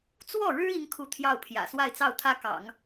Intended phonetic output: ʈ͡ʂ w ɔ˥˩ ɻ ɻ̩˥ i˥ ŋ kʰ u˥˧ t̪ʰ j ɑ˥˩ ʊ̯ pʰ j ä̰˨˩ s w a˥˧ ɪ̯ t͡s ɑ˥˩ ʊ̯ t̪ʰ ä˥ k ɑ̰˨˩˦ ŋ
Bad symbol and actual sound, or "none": ʈ͡ʂ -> t͡s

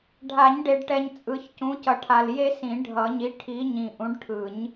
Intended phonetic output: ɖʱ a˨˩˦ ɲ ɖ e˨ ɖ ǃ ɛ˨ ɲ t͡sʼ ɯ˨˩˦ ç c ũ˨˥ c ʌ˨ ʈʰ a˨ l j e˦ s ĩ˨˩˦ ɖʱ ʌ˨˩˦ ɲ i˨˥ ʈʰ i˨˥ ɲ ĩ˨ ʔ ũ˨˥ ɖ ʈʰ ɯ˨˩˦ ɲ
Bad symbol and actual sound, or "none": ǃ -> ʈ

